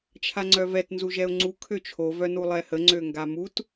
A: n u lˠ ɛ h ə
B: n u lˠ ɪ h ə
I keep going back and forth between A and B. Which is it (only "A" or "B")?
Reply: A